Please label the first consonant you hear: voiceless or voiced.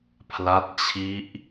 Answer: voiceless